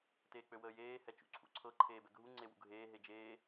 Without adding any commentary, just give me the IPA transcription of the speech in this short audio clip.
t eː k͡p ø w əː j eː h ɛ t͡ʃ ṵ ǀʰ ṵ ǀʰ ɤ ǃʰ eː b ɛ ɡʱ u ŋ͡ǀ e w ṵ ɡʱ eː ɦ e d͡ʒ eː

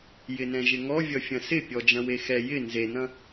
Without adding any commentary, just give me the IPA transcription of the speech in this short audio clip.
j ɪ n ɛ̃ ʒ ɪ ŋ ɔ vʲ ʌ fʲ ɐ̃ s ɪ pʲ ɔ d͡ʒ ɐ̃ w e x ɛ j ɪ n z e n ɐ̃

